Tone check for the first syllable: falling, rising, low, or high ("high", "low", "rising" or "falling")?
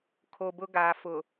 low